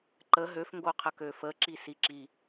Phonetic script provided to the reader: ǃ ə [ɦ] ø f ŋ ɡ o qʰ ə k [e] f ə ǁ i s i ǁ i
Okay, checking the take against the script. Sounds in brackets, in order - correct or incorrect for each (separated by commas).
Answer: correct, incorrect